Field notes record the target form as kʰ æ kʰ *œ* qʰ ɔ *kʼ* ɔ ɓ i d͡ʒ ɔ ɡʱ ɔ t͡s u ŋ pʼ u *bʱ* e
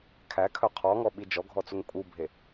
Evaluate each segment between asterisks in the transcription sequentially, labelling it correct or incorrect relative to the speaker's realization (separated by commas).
correct, incorrect, correct